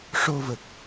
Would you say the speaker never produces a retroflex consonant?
no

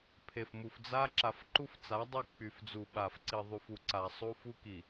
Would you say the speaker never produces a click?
no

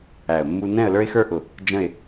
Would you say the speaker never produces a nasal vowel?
no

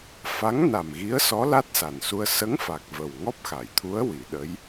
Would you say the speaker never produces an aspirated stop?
no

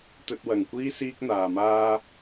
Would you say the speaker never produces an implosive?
yes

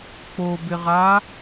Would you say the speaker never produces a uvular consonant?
no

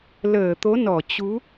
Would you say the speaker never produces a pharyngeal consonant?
yes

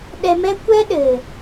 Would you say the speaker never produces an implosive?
no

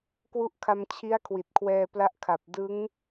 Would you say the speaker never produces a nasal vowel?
yes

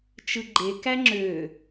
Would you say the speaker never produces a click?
no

